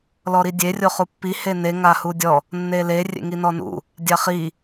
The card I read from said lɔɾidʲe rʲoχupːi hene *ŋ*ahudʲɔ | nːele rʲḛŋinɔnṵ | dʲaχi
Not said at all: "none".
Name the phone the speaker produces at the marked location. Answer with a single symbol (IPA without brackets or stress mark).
ŋ